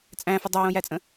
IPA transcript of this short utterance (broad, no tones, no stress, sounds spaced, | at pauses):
t͡sʼ æ̃ f ə dˤ æ j õ j æ t͡sʼ ə̃